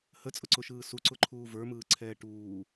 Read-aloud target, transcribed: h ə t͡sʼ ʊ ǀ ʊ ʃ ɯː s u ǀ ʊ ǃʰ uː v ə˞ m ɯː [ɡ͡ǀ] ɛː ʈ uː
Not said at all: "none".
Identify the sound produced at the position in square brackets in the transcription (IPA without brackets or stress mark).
ǀʰ